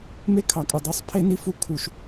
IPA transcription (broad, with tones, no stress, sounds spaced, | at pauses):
m e˦ kʰ ɑ˨ kʼ u˨ dˤ y˦ sˤ pʰ e˦ n i˦ f u˦˨ kʰ u˦ ʃ